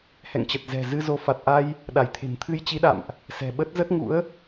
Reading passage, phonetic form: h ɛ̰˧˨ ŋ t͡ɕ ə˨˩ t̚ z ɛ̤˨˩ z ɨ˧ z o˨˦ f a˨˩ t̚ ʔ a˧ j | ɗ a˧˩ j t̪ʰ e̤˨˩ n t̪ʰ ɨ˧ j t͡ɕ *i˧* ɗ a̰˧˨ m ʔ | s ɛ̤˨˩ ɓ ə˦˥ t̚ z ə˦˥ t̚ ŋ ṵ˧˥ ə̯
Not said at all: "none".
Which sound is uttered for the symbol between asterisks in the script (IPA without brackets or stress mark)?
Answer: i˨˦